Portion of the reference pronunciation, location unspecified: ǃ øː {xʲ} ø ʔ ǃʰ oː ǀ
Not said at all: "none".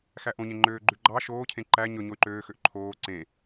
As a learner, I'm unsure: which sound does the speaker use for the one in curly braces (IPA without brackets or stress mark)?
x